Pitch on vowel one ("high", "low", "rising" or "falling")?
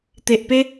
low